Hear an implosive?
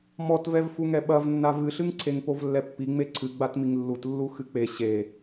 yes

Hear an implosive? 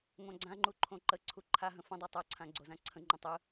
no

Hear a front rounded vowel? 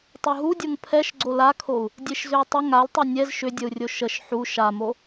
yes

